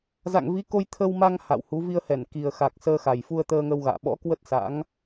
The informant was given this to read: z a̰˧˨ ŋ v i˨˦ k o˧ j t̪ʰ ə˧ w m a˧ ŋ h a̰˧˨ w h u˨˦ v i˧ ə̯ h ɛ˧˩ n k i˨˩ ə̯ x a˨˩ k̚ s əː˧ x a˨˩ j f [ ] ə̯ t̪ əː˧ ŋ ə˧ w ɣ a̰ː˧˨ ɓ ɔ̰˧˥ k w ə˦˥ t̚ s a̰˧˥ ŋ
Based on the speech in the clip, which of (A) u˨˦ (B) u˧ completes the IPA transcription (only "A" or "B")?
B